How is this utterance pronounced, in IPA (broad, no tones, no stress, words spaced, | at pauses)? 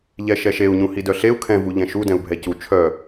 ʎɛʃɛʃeu̯ ɲũhidœɬeu̯ kʰɛ̃ vuʎɛ̃ʃu dɛ̃u̯bʱɛcu t͡ʃʰœ